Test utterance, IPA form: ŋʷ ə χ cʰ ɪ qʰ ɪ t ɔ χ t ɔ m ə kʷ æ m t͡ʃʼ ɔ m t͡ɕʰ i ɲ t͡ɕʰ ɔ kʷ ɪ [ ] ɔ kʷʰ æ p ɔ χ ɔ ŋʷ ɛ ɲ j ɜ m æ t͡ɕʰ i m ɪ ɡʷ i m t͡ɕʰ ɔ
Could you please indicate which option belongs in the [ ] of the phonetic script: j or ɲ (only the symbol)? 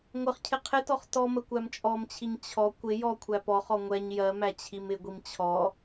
j